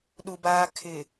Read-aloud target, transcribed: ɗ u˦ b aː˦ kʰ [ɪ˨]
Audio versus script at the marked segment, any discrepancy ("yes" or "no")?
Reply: no